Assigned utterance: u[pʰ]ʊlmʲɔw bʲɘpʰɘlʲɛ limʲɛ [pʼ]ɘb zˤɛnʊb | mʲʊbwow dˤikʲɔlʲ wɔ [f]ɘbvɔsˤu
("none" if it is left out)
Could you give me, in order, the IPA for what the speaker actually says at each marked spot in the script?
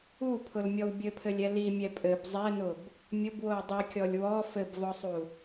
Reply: pʰ, pʼ, f

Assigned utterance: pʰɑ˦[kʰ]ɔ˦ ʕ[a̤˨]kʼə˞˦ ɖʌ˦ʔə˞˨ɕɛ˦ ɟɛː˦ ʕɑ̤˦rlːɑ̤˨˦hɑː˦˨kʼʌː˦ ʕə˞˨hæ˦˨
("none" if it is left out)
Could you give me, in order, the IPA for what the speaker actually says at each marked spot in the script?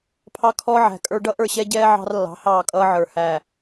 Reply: kʰ, æ̤˨

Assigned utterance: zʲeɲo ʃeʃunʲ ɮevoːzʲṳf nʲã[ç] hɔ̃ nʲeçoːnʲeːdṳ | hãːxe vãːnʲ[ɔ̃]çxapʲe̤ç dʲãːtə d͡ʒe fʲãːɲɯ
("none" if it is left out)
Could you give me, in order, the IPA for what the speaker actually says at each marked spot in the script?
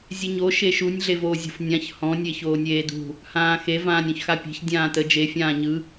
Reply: ç, ɔ̃

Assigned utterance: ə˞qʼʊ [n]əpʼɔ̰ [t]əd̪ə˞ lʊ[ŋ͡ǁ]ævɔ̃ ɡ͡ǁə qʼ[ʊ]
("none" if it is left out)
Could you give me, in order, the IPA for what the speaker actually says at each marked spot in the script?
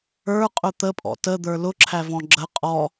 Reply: t̪, t, ǁʰ, ɔ

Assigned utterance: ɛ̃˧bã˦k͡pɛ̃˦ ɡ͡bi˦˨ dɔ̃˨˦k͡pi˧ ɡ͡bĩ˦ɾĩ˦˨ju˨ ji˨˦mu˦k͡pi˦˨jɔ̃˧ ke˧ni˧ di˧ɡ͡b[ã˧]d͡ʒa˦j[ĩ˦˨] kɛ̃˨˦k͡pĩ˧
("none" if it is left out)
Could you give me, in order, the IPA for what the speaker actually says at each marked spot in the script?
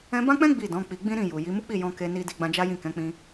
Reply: ã˧, ĩ˦˨

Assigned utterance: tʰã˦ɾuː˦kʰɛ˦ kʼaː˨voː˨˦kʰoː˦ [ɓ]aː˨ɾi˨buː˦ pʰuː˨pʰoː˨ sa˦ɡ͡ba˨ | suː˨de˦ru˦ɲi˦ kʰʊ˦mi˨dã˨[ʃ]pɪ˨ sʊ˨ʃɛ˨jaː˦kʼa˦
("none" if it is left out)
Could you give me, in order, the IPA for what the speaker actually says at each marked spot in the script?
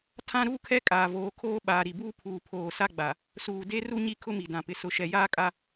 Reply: ɓ, none

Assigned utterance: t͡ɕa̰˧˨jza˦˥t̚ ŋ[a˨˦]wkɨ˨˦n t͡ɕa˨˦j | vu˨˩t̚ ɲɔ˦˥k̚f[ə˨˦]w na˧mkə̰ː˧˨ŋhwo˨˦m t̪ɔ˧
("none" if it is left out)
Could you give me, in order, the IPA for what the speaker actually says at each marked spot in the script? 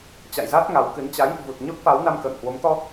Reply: a˨˦, a˨˦

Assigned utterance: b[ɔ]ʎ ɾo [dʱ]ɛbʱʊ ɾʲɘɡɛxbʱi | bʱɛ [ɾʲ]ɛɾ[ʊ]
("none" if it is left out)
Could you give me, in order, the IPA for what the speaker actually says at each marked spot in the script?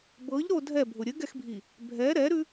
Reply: ɤ, dʱ, ɾ, ʉ

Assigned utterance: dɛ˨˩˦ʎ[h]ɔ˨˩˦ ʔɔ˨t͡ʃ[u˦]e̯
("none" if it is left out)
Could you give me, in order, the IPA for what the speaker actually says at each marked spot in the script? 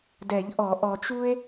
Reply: ʔ, u˦

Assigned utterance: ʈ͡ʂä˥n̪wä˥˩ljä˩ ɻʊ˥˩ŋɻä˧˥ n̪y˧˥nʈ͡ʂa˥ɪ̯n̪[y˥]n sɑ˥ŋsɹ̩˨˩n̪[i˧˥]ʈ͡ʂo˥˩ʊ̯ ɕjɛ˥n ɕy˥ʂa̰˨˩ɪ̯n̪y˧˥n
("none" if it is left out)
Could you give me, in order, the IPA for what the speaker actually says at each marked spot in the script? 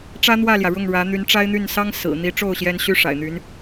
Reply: y˥˩, i˧˥

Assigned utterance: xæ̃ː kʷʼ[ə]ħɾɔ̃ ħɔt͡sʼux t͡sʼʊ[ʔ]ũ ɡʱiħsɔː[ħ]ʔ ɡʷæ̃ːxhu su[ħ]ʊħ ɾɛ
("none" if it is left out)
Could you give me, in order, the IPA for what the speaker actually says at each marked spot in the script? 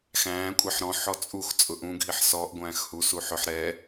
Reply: ɛ, ʔ, none, ħ

